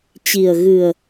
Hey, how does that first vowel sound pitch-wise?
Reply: low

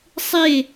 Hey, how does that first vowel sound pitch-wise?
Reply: falling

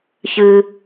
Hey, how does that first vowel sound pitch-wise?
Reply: low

